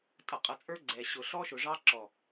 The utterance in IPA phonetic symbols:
tʼ ʌ˨ qʼ ʌ˨ t͡sʼ ə˞˦ ɡ͡ǀ ɛ˨ ɕ ʊ˨ ɬ ɔ˦ ʃ ʊ˨ ʐ ɑ˦ ǁ ɔ˨

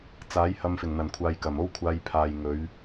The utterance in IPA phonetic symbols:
t͡s aː˨˥ j h ɐ˧ m f ɪ˨˩ ŋ n̪ ɐ˨˩ n kʷʰ aː˨ j k ɐ˨˩ m o˥ w kʷʰ aː˧ j pʰ aː˨ j ŋ ɵ˨˧ ɥ

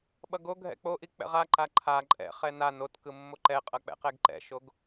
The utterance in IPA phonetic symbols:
ɓ ʌ ɡ o ɡʱ ɛ̰ k͡p o ʔ i k͡p ɛ̰ ʁ a ǃ a ǃʰ a ǃʼ ɛ̰ χ ɛ n a n o t k ɯ mː o ǃ ɛ qʼ ʌ k͡p ɛ̰ q ɛ ɡ ǃ ɛ̰ ʃ o ɡ

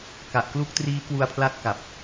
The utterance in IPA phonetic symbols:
k a˨˩ ʔ k l u˦˥ k̚ t r iː˦˥ k w u˧ a̯ pʰ l a˦˥ t̚ k a˨˩ p̚

